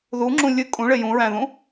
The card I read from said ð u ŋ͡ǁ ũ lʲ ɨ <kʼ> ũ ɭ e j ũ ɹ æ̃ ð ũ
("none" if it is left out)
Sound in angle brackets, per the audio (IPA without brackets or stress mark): kʼ